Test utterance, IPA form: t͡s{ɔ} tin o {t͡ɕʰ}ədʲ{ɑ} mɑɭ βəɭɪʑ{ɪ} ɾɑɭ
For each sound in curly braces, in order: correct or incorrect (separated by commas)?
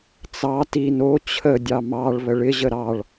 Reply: incorrect, correct, correct, incorrect